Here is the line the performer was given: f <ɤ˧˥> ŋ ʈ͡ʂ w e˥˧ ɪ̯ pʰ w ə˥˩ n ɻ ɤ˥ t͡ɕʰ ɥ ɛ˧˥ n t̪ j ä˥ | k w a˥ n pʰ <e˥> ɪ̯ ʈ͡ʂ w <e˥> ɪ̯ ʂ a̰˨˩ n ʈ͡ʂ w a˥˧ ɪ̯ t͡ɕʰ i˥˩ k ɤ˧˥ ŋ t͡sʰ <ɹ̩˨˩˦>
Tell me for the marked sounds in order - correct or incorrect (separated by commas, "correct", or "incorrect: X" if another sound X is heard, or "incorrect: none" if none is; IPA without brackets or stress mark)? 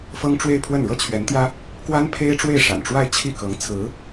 incorrect: ɤ˥, correct, incorrect: e˥˩, incorrect: ɹ̩˧˥